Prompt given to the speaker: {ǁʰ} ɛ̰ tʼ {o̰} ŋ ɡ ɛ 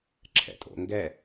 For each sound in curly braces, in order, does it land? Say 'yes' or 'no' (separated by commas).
yes, yes